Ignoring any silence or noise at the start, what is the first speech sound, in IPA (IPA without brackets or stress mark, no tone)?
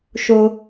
ʃ